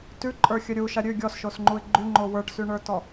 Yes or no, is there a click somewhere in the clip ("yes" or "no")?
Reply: yes